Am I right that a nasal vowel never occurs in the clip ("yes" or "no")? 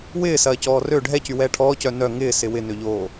yes